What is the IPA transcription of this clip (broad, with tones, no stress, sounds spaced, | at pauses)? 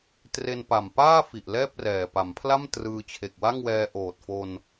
t r e˧ n p a˨˩ m p aː˥˩ f i˨˩ ʔ l ɛː˥˩ p̚ r ɛː˨˩ p a˩˦ m pʰ l a˥˩ m t r ɯː˧ t͡ɕʰ e˨˩ k̚ w a˥˩ ŋ w ɛː˧ ʔ oː˨˩ t̚ f o˧ n